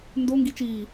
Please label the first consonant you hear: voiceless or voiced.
voiced